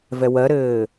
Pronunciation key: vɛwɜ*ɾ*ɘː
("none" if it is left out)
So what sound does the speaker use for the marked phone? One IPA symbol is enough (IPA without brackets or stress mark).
ɾ